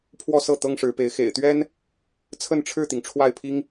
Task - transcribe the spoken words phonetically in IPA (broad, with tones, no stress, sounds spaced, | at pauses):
pʰ w ɔ˥˧ s ɤ˥˩ t̪ ɤ˥ ŋ ʂ ɻ̩˧˥ p e˧˥ ɪ̯ x ḛ˨˩ ɪ̯ t̪ ɥ ɛ˥ n | t͡sʰ ə˥˧ n ʈ͡ʂʰ ɻ̩˥˩ t̪ i˩ ŋ ʈ͡ʂʰ w a˥˩ ɪ̯ pʰ i˥ ŋ